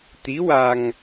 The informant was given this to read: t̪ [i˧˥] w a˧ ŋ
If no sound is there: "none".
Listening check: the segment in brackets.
i˧˥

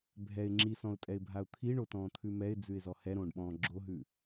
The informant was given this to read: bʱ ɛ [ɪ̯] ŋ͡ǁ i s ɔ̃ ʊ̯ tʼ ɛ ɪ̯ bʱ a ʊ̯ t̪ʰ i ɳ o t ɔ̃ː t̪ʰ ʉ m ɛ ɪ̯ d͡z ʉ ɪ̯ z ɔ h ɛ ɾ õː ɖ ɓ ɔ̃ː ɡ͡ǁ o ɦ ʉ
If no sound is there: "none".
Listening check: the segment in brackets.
ɪ̯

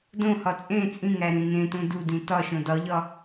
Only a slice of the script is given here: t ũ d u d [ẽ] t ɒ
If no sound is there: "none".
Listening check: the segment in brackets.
ĩ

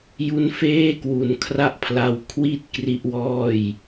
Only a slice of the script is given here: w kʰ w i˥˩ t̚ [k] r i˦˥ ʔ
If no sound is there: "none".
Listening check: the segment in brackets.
k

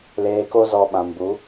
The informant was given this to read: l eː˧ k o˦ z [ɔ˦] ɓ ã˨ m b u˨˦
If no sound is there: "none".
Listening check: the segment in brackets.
ɔ˧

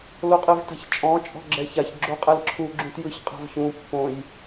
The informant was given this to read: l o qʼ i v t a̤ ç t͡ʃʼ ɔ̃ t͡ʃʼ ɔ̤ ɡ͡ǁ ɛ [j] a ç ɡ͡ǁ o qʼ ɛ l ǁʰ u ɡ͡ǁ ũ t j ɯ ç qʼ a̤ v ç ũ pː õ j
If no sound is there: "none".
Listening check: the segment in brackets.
ç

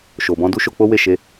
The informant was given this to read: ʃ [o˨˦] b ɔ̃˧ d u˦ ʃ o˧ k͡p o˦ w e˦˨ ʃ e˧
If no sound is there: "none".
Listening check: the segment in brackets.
o˨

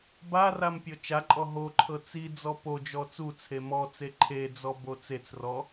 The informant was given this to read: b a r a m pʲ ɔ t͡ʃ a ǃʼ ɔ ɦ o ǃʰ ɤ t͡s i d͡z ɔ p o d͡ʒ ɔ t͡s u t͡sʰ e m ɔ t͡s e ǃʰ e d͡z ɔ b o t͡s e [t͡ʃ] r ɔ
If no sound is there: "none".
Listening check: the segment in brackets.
t͡s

